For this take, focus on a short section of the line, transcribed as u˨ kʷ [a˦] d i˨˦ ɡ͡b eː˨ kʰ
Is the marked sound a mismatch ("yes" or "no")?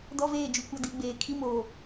no